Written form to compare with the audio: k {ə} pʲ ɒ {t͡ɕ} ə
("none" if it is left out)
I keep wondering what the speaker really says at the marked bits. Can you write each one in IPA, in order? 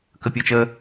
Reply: ə, t͡ʃ

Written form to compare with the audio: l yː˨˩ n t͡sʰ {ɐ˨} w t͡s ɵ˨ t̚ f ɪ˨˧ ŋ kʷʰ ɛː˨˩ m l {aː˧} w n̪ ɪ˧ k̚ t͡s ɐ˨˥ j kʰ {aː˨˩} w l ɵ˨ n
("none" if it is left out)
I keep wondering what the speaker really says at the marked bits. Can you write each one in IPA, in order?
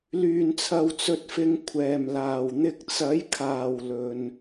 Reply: ɐ˨, aː˨˩, aː˨˩

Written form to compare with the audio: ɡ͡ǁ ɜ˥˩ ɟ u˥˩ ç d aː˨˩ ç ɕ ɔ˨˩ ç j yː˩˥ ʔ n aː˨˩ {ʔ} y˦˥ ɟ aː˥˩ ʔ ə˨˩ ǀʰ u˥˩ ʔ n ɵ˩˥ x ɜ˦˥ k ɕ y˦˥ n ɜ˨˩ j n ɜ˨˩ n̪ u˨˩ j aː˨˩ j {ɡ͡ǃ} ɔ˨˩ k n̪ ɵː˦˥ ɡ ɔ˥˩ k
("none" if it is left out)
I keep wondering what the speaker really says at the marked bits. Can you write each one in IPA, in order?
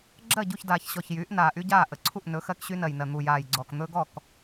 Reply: ʔ, ɡ͡ǀ

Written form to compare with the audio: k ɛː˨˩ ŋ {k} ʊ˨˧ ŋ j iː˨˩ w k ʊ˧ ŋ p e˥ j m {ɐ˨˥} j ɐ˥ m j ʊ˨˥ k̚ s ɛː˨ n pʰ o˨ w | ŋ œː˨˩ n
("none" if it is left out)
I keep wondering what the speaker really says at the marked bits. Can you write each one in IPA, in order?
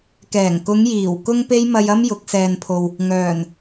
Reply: k, ɐ˧

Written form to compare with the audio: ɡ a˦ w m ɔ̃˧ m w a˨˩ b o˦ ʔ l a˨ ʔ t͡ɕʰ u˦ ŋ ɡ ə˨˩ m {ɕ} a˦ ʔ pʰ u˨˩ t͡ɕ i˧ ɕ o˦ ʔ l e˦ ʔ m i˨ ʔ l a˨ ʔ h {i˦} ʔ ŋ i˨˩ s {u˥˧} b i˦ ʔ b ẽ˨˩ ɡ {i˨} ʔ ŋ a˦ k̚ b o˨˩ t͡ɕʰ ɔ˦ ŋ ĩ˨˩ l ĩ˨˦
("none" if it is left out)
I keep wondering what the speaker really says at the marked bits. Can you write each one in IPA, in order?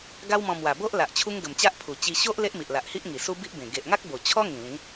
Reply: t͡ɕ, i˦, u˦, e˨

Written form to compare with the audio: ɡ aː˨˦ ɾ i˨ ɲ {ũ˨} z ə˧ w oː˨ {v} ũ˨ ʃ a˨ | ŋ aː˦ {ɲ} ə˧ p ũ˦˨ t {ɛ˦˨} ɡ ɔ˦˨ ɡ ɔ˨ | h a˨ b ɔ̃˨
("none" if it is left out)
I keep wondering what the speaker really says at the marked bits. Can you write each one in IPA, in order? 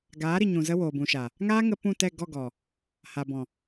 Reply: ũ˨, b, ŋ, ɛ˦˨

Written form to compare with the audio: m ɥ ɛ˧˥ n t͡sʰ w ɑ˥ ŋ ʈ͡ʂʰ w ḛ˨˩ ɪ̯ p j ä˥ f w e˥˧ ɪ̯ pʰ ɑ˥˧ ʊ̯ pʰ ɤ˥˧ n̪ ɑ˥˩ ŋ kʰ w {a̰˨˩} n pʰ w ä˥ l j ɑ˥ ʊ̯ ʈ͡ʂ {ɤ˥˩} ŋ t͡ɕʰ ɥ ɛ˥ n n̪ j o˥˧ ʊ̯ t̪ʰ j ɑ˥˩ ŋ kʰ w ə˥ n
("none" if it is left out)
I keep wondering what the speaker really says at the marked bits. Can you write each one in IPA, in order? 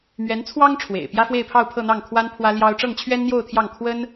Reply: a˥, ɤ˥˩

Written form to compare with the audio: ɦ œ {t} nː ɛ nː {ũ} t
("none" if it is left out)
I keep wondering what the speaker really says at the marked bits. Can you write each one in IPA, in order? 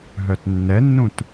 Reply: t, ũ

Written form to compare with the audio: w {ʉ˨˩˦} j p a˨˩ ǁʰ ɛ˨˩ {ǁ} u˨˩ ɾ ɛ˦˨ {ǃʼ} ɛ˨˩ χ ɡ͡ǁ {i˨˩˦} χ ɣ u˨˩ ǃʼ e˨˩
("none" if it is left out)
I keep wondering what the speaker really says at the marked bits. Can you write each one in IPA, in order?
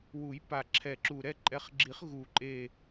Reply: u˨˩˦, ǁ, ǃʼ, i˨˩˦

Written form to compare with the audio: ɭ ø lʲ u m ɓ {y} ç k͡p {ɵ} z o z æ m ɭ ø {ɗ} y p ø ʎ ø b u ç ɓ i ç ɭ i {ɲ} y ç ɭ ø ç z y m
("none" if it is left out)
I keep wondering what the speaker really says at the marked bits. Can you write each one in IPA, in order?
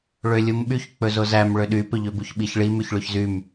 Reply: y, ɵ, ɗ, m

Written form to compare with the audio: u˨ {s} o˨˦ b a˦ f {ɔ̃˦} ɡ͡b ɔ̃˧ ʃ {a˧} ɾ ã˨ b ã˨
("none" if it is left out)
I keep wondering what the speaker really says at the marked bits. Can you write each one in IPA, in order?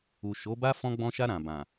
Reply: ʃ, ɔ̃˧, a˧

